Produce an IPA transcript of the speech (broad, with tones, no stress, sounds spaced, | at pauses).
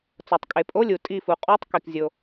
t͡s ɒ˩ tˤ kʼ e˩ pʼ o˧˥˧ lʲ u˩ tʼ i˧˩ f u˩ qʼ o˧˥˧ tˤ k i˩ k zʲ o˩